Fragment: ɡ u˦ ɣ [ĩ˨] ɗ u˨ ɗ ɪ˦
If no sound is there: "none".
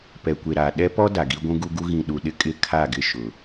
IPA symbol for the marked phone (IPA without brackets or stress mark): ĩ˨